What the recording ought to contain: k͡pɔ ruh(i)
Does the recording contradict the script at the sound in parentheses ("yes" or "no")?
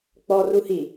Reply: no